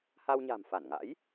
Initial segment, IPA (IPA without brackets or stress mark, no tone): h